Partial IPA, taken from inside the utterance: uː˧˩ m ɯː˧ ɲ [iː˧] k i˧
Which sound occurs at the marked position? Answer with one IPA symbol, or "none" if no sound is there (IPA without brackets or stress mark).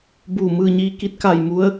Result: iː˧